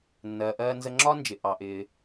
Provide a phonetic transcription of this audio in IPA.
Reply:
nː ɜː˩ ʔ ɜː˧ n z ə˧ ŋ͡ǁ ɒː˥ n d͡ʒ ɪ˩ ʔ ɑ˩ ʔ ɪː˩

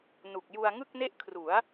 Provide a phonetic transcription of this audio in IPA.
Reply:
n u˨˩ k̚ j u˧ a̯ ŋ ɯ˥˩ k̚ n e˥˩ ʔ kʰ r u˩˦ a̯

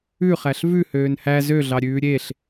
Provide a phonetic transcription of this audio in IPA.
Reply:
ʉ χ æ ɬ v ʉ h øː n h æ z ø ɮ ɑ ɾʲ ʉː ɾʲ e ɬ

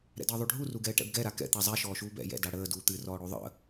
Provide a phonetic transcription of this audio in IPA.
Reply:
ɾ ɛ̰ d əː ðˤ u ɖʱ u r u ɡ ɛː ʈ ɛ̰ b ɡ ɛ ɾ a k ɛ̰ t̪ a zˤ ɛ ʃ ɔː ʃ uː b ɛ̰ j ɛ̰ d a ɽ əː d uː t̪ ɨ r ɔː ɽ o ðˤ ə̰

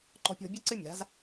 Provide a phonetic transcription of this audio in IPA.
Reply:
ǃ ɔ̤˧ pʲ ɔ̤˧ bʲ ɯ˥ ǀ ɨ˥ mʲ a̤˩˥ z

